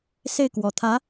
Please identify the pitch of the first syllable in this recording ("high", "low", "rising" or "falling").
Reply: falling